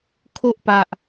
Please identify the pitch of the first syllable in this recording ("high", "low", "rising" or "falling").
high